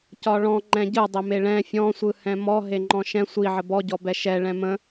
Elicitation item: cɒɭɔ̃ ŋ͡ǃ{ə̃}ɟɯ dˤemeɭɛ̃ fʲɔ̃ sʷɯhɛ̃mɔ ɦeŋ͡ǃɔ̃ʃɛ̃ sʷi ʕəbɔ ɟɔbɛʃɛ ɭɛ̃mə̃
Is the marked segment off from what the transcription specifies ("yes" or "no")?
yes